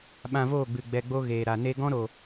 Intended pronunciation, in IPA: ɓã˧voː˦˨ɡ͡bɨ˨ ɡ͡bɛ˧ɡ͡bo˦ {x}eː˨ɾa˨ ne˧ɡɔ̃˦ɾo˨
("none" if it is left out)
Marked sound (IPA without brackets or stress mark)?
ɣ